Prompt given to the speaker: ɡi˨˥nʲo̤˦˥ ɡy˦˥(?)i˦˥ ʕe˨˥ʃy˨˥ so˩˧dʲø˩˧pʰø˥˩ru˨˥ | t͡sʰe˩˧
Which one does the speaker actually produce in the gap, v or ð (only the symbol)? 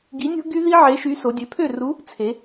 ð